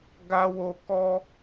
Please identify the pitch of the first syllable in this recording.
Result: high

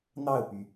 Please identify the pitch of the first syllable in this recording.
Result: falling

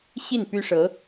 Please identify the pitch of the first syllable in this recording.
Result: falling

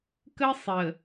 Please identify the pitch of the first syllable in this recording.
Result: high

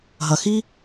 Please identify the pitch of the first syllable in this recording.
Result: low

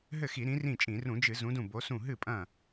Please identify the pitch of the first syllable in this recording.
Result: falling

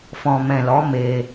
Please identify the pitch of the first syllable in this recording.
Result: low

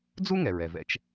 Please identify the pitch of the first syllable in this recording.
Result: high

